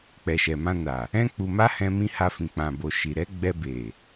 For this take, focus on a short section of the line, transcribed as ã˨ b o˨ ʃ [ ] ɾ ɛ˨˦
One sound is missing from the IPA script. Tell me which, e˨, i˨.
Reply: i˨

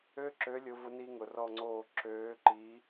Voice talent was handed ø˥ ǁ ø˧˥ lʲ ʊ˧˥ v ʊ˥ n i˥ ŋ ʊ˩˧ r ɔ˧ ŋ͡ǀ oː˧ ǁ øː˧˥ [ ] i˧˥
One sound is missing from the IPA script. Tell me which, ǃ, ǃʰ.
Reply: ǃ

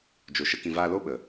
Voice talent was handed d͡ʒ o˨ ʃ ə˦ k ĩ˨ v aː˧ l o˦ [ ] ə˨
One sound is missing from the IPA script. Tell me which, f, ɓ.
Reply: ɓ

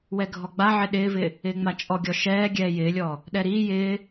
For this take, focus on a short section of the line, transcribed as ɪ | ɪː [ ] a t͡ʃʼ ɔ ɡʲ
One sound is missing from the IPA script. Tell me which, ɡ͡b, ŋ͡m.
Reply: ŋ͡m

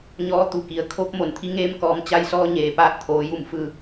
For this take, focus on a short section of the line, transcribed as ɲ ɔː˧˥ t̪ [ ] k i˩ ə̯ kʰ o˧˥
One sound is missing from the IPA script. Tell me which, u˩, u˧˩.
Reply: u˩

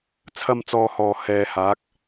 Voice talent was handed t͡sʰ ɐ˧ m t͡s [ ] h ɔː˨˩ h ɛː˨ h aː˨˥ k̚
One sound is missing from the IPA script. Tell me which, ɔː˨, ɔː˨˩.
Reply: ɔː˨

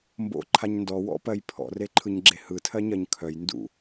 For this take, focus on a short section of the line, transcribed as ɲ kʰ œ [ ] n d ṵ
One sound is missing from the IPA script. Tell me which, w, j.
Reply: j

